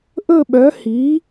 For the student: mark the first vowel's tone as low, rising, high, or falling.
falling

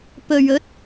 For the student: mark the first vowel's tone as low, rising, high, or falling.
low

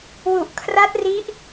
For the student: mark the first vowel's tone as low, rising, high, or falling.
low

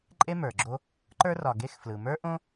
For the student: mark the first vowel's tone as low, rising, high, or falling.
high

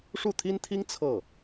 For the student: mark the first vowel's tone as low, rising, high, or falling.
falling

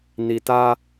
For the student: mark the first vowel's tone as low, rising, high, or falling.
low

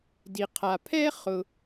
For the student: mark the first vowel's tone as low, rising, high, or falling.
low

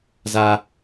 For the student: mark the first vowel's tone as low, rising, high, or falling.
high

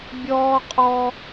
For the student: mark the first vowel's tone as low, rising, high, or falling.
high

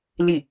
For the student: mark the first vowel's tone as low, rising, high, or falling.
falling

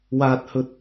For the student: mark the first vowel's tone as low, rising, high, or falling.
low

